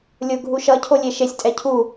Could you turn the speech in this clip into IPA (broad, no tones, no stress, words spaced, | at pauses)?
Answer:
lʲʊ ɡʱuʃʌcʰolʲe ʃesʲtʼɛ cʰu